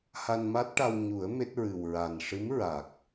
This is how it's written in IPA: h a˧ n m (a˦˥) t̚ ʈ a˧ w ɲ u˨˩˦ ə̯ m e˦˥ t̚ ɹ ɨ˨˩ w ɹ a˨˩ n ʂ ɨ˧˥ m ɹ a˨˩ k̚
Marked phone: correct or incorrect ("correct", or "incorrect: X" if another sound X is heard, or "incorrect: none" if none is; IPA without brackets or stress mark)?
correct